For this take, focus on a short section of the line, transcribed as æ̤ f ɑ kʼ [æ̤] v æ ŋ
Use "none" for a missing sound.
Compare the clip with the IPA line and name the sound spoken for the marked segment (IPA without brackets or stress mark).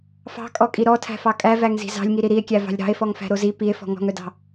æ